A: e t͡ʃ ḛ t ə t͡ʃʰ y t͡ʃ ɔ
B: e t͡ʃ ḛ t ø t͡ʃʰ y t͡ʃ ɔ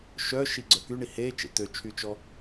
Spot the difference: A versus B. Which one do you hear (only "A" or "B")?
B